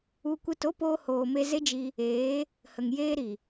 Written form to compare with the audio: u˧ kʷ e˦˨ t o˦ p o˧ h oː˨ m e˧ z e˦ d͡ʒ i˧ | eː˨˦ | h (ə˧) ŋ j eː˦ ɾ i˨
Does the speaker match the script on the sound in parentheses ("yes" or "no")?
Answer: no